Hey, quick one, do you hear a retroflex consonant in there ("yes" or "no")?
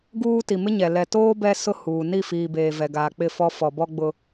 no